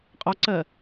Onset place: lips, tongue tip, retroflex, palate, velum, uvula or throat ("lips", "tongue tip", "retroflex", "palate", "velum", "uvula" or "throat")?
uvula